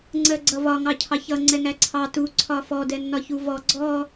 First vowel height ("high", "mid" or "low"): mid